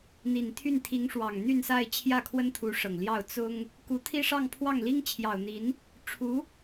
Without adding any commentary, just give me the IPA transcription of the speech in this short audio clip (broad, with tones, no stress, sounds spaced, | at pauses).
n̪ i˨˩ n t̪ʰ y˥˩ n t̪ʰ i˧˥ ŋ ʂ w ɑ˨˩ ŋ n̪ y˥˧ n s a˥˧ ɪ̯ t͡ɕʰ j ä˥˩ kʰ w ə˥ n t̪ʰ u˧˥ ʂ ɤ˨˩ ŋ l j ɑ˥˩ ʊ̯ t͡s ʊ˥ ŋ | k u˧˥ t̪ʰ i˥ ʂ ɑ˥˧ ŋ pʰ w ɑ˥˩ ŋ l i˥ ŋ t͡ɕʰ j ɑ˨˩ ʊ̯ n̪ i˧˥ n | ʈ͡ʂʰ u˧˥